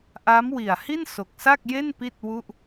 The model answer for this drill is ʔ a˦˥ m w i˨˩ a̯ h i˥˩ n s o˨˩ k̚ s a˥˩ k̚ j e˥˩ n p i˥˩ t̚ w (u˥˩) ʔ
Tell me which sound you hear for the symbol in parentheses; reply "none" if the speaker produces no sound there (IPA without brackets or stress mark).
u˥˩